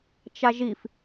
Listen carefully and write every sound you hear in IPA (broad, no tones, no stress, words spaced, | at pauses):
t͡ʃaʒif